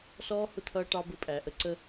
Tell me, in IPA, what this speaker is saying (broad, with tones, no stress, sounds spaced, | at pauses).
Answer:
s ɔː˦ h ʊ˦˨ t̪ʰ ʌː˦ ʈ ɑ˦ b ʊ˦ pʼ æ˨ ʔ ə˦ ǀ ə˦